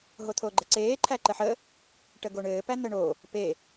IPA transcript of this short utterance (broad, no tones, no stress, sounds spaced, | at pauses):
ɦ o t̪ʰ o ɡ͡ǃ ɘ ǀ eː ǃʰ æ ǃ ə ħ ə | ʈ ə ɡ o ɳ ɘː p æ n̪ ə ɳ o | p e